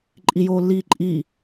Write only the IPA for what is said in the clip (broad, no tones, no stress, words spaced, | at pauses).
ǃʼijoːlːiːǃʼi